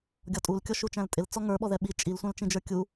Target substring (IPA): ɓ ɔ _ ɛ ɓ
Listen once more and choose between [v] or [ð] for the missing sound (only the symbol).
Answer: ð